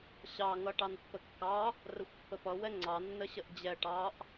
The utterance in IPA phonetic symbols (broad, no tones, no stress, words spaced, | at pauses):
ɕɑŋʌ ʈɑnpːəkːɑ | rəxʷpːəpʌ wɛŋ͡ǀɑnːəɕəʔ d͡ʑɛ ʈɑʔ